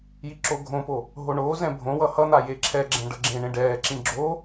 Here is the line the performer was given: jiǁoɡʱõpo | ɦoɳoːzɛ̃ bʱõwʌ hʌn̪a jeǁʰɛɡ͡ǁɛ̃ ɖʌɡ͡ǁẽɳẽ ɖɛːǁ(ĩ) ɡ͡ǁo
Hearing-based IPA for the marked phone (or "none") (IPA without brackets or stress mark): ĩ